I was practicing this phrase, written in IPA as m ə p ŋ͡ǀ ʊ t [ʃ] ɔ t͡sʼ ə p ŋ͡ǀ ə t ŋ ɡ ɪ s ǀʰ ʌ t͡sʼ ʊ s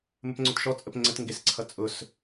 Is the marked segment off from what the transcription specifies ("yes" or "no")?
no